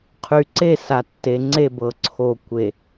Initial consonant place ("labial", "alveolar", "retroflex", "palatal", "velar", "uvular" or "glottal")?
uvular